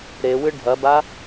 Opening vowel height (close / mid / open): mid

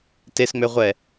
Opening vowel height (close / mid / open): mid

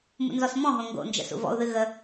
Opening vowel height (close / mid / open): close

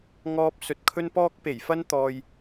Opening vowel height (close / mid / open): mid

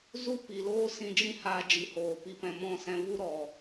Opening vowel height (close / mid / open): close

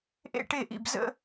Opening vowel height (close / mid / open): mid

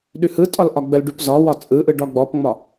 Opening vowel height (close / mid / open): close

